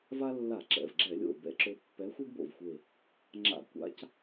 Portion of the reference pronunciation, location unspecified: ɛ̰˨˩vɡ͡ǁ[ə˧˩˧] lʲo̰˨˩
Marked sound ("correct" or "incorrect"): incorrect